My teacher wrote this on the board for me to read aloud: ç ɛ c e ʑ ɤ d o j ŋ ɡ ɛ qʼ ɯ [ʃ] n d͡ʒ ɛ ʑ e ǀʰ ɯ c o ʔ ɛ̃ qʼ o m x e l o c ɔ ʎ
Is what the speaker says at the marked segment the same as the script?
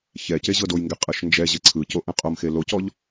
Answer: yes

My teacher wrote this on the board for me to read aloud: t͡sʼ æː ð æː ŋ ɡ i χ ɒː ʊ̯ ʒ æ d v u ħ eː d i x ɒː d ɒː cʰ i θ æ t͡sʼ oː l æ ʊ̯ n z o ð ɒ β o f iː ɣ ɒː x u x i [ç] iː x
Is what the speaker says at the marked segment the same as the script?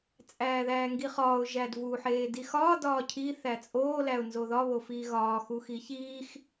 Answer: yes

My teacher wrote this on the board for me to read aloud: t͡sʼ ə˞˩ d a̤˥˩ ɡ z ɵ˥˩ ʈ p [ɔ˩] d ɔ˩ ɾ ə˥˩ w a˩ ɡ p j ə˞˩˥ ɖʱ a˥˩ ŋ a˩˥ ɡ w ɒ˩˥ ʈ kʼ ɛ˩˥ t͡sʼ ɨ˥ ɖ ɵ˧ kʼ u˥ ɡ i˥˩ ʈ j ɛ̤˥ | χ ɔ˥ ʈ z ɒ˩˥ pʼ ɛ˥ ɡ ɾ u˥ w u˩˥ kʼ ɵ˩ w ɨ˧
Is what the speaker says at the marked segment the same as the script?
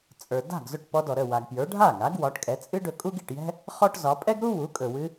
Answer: no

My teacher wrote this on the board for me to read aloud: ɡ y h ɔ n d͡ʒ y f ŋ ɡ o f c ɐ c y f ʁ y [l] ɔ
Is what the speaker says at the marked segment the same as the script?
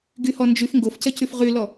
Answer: yes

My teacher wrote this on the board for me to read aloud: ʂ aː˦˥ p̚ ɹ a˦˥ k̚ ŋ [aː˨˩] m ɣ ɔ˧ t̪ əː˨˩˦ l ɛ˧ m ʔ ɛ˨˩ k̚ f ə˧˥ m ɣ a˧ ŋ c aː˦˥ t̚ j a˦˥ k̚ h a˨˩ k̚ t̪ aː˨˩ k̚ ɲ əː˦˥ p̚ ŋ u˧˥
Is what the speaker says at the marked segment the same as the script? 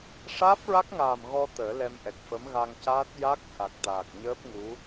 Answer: yes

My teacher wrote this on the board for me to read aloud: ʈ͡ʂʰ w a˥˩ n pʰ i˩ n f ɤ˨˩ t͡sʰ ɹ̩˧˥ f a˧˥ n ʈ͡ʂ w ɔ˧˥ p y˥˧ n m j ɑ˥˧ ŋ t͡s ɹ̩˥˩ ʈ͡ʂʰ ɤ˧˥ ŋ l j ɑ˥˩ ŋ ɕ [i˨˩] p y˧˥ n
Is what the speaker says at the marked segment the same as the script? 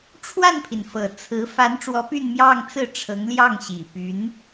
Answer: yes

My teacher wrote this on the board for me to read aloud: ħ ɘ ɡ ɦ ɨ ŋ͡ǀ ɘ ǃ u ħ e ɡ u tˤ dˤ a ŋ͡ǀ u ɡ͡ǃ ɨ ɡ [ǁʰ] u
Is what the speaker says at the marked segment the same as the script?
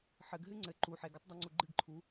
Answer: no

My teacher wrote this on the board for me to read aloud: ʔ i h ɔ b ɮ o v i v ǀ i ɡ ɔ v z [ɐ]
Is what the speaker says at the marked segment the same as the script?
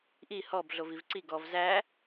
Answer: no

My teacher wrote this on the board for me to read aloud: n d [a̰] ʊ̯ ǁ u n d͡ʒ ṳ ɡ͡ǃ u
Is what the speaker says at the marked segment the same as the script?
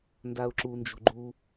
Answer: no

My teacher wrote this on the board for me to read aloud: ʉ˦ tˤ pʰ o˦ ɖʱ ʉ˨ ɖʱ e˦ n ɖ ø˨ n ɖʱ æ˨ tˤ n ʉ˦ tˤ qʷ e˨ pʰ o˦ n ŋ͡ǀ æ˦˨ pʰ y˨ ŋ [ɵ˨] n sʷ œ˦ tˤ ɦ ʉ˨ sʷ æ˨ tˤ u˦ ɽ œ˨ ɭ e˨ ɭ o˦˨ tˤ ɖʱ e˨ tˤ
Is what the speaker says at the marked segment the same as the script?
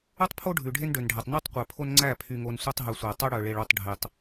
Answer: no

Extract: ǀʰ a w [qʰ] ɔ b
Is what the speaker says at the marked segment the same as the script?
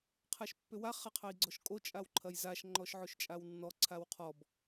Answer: yes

